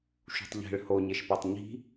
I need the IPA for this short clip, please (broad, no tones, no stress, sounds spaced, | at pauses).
ʃ ṳ tˤ ʎ e̤ ɭ h o ɲ e ʃ p ɛ tˤ ɲ i̤